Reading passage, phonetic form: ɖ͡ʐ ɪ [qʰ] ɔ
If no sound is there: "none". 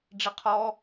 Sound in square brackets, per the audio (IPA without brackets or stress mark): qʰ